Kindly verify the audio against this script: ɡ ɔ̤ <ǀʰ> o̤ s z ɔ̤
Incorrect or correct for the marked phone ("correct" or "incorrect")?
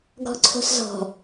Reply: correct